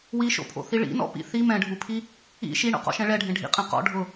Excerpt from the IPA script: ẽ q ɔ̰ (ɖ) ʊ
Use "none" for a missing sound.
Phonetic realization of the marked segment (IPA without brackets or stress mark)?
ɖʱ